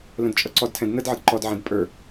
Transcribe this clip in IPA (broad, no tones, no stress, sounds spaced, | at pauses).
l ə̃ d t͡ʃʼ ʌ ǀ ɔ d tʰ ɛ̃ d n ə d ʕ ə d ǃ ɔ d ʕ ɛ̃ d pʼ ə˞